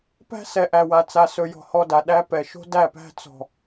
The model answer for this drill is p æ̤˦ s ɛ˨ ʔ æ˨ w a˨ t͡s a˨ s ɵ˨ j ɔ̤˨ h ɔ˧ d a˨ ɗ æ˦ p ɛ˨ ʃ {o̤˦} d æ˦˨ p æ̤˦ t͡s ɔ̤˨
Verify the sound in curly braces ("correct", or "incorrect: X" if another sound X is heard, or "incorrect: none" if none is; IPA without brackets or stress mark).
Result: correct